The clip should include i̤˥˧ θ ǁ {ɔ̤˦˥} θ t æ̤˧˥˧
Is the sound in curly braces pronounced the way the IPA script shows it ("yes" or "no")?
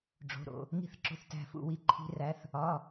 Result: no